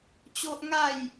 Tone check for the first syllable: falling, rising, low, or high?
high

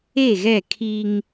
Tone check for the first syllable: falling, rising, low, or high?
falling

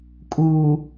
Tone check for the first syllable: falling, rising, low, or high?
low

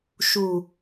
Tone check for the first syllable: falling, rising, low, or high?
low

